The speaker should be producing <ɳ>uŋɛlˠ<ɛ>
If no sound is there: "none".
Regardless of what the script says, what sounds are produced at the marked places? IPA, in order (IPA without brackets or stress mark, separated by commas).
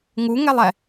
ŋ, ɛ